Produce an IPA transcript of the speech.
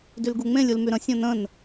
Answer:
dylɡuŋ͡mẽlʲ ulmyɾə̃ sʲõnə̃n

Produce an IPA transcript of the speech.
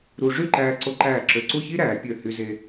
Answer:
ɾu˧ ʐy˥˧ǃæː˧ǀo˧ǃæː˧˩ ǁø˧ ǀu˥˧çi˥ɾæː˩˧ pʲø˧˩hy˧ ze˧

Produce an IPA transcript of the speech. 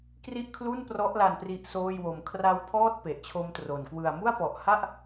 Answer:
kri˥˩ʔkʰlu˥˩nprɔ˦˥ʔla˧n pri˦˥ʔsoː˥˩jwo˧m kʰra˦˥wpʰɔː˥˩t̚ pe˨˩ʔt͡ɕʰo˦˥mtro˨˩nkwɯ˧a̯ mu˥˩a̯pɔ˨˩ʔha˥˩ʔ

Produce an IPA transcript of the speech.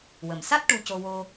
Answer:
wə˨˩m sa˦˥t̚ ʈu˧co˧wo˧

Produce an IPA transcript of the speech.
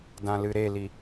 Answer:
dãlɨɾeli

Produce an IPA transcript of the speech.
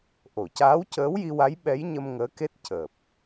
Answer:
ʔo˨˩˨caː˧˥wcəː˧˥wji˧ wa˧˥jɓɛ˧˥jɲə˧m ŋəː˧˥ke˦˥t̚ cəː˨˩p̚

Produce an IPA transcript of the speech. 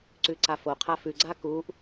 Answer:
ǀʉǀafoqʰa fʉɡ͡ǀa kuʔ

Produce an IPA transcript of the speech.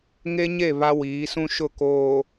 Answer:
ŋe˦ɲe˦˨ βa˦wiː˨˦sũ˦ʃʊ˦˨ koː˨

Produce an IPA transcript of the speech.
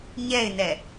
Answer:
ɲɛɪ̯nɛ

